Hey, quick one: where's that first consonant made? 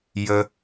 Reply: palate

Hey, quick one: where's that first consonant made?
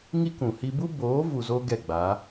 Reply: velum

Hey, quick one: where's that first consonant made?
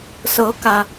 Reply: tongue tip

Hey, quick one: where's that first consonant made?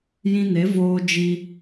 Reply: palate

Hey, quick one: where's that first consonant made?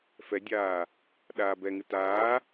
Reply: lips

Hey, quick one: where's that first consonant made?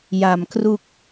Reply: palate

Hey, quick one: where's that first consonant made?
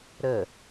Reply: tongue tip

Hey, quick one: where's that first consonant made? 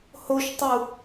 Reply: throat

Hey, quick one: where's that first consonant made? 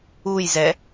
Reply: palate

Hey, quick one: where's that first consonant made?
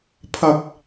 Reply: lips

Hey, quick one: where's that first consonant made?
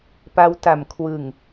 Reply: lips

